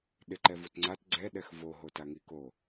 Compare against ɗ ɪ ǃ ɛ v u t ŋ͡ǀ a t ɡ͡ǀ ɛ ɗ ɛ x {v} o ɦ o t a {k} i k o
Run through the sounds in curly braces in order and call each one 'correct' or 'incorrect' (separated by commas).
correct, incorrect